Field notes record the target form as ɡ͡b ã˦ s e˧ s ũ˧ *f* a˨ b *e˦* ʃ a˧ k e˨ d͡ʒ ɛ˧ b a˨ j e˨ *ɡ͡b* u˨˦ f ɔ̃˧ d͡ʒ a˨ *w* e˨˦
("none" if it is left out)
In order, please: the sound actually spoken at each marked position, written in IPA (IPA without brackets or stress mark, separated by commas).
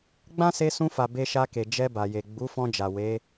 f, e˧, ɡ͡b, w